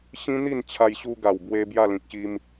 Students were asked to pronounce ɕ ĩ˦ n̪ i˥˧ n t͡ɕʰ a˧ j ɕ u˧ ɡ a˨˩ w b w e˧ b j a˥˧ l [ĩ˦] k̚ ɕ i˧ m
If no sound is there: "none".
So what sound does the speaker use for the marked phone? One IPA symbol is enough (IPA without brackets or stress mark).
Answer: ĩ˨